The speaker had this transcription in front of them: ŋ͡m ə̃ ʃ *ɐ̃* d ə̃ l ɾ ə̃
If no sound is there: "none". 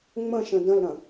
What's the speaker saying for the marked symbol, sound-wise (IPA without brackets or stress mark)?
ə̃